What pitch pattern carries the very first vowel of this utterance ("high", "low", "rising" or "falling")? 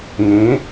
rising